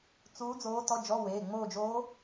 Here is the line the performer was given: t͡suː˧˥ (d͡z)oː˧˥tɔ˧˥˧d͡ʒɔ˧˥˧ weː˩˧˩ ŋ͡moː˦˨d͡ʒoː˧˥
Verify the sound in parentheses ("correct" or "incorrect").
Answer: correct